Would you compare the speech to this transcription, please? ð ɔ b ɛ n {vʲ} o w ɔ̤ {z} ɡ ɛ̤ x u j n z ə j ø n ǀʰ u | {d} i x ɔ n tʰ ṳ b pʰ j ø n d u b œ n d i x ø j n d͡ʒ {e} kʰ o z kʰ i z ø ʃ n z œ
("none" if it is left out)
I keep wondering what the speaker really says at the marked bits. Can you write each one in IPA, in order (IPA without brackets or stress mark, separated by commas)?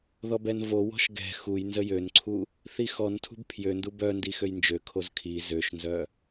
v, ʃ, θ, ø